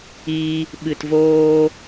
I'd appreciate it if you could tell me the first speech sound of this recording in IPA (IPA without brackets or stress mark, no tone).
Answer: iː